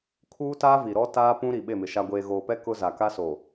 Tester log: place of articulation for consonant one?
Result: velar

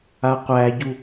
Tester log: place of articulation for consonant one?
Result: uvular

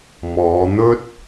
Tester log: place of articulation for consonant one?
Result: labial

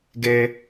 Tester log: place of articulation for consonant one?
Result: velar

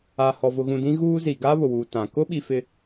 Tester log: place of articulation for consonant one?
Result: glottal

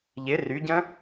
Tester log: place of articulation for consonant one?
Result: palatal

